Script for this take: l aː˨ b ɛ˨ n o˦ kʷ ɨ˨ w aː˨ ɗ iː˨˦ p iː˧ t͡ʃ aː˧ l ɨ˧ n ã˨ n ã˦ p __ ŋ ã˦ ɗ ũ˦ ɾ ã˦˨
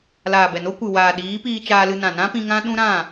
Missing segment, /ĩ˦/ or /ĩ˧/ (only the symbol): ĩ˧